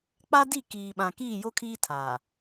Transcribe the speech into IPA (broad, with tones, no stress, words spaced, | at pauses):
k͡pa˦di˦˨kiː˨ɓã˨ kiː˦˨jo˦kʰiː˦ tʰaː˨